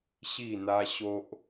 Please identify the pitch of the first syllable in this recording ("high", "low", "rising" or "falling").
falling